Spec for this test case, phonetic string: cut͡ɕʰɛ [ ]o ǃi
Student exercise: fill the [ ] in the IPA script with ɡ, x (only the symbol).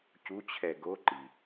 ɡ